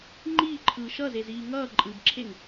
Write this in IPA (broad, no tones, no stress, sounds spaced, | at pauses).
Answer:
ŋ͡ǃ iː ǃʰ ɯː ʃ ʌ z e z iː ŋ ʌː ǃʼ ɯ b ǁʰ e ŋ